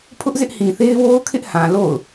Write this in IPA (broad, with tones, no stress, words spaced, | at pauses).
pʰʊ˦ʔzɪ˦ʔ hĩ˨θe˦ɪ̯ wo˦ʊ̯kʰɪ˦ʔhã˨ lo̰˦˨ʊ̯